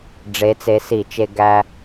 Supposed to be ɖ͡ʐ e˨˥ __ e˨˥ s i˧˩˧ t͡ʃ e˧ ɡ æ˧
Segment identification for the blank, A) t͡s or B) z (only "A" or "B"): A